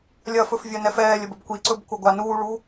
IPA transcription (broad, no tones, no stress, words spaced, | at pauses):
lʲɐfɵfvʲɐnɛf ɛːlʲəbəb kʷiǀɵbkʷɐɡʷa nuːɭuː